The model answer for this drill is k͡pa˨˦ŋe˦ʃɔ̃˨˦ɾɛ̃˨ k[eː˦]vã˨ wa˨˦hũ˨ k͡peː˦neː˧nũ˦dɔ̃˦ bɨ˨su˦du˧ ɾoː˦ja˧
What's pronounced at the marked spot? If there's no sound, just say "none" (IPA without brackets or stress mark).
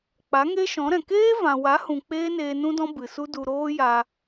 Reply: eː˦